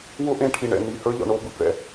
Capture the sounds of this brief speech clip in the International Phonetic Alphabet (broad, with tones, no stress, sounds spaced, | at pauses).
w ʊ˦ ʔ ẽ˦ ʈʰ i˨ ɳ ɛ̰˨ n i˨ h ə˞˦ ʎ ɔ̰˨ ɳ o˦ b ɯ˨ b ɭ ɛ̰˦